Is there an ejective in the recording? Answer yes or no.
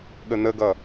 no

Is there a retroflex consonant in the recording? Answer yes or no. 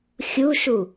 no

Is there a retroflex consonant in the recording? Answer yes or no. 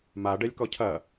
yes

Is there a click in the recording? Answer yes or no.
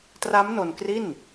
no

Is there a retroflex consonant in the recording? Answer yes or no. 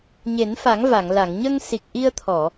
no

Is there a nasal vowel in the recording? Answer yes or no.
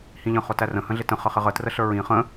yes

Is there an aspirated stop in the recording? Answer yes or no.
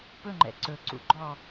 no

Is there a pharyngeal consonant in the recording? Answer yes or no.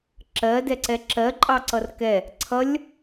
no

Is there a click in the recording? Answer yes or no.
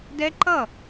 yes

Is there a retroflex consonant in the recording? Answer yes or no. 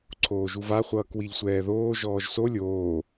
no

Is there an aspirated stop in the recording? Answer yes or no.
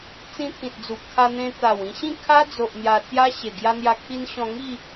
yes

